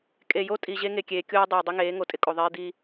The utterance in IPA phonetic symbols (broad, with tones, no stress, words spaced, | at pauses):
kʼe˨jo˦ tʼi˨ ʑe˦ŋe˨kʲeː˨kʲoː˦ dˤeː˨dˤɪ˦ŋeː˨˦ ŋo˨tʼɪ˦kʼo˨ðˤeː˦ d̪i˦